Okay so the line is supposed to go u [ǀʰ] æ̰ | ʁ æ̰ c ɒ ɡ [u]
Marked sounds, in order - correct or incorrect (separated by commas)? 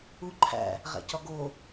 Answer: incorrect, incorrect